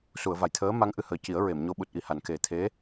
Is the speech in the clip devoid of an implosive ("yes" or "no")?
no